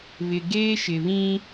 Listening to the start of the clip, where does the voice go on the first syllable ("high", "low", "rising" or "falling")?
low